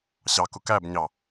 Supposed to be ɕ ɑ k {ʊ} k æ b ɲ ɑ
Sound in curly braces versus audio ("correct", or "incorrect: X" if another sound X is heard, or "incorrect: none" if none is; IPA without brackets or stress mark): correct